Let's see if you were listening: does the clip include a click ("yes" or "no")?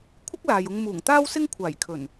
no